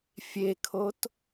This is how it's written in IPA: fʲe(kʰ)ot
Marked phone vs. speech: correct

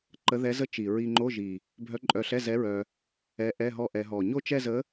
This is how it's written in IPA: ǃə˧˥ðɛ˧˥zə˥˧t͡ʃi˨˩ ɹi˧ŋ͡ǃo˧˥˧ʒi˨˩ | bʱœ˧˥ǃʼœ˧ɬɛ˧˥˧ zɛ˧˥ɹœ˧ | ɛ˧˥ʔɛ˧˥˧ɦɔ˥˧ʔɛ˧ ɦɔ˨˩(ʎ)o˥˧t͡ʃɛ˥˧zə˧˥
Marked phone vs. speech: incorrect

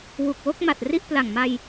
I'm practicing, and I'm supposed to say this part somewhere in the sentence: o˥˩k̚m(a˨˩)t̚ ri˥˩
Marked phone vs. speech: correct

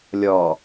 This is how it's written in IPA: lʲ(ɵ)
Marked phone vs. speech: incorrect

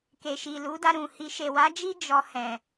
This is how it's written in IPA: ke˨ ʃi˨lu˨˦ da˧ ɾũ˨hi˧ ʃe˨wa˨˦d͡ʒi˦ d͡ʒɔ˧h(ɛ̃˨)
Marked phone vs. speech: correct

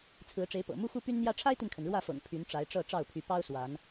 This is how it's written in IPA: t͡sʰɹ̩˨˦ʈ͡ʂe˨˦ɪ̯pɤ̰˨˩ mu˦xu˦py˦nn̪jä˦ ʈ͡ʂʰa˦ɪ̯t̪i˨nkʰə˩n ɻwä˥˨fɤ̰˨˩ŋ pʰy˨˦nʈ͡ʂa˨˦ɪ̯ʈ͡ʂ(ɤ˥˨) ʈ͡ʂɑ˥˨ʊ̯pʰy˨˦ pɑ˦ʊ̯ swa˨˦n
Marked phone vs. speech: correct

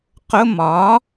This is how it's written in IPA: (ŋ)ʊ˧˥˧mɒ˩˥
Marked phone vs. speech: incorrect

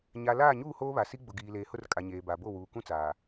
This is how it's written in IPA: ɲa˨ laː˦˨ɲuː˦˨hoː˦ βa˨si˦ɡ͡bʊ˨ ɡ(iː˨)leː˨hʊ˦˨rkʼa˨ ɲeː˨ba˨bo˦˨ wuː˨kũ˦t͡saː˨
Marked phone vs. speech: correct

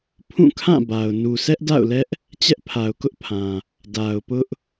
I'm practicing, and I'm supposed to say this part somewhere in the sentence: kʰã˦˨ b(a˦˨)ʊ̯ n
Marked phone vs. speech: incorrect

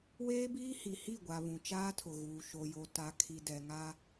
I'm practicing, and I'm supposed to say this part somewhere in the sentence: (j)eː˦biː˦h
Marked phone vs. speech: incorrect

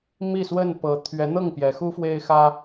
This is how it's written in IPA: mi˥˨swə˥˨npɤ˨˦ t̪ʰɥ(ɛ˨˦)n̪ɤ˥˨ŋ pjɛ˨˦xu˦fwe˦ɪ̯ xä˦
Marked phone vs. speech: correct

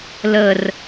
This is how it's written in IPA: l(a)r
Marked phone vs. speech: incorrect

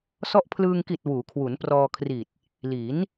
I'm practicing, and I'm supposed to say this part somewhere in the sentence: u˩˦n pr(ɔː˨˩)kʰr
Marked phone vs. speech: incorrect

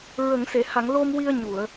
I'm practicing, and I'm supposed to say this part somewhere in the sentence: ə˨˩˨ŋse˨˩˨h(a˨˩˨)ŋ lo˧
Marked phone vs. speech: correct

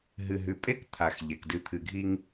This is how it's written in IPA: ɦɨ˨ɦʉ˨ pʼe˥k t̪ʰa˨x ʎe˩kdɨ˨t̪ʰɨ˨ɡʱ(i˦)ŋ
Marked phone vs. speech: correct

